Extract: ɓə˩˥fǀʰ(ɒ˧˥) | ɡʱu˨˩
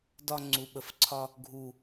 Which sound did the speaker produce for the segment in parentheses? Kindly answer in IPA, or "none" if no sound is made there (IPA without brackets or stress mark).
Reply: ɒ˧